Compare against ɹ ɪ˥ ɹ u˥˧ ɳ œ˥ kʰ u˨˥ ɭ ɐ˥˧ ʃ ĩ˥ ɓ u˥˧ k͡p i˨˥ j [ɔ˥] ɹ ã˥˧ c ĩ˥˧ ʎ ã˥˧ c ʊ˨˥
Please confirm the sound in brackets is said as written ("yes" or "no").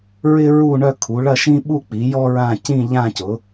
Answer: yes